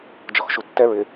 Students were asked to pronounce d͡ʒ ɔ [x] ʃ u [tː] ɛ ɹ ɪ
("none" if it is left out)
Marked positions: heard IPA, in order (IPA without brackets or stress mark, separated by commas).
x, tː